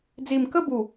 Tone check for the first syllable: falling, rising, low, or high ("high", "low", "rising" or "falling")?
low